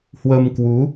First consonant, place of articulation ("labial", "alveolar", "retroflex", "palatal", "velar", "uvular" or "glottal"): glottal